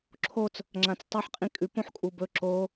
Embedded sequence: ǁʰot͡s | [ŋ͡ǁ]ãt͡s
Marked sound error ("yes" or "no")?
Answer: no